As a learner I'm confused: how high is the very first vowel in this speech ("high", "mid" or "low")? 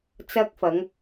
low